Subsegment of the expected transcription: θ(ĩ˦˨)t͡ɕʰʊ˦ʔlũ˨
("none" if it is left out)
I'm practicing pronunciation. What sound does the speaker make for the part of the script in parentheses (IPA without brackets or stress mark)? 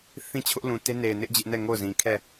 ĩ˦